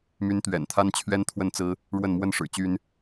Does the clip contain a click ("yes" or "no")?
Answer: no